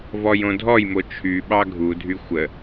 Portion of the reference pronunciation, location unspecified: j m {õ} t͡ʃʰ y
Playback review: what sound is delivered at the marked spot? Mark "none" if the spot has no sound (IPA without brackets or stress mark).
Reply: o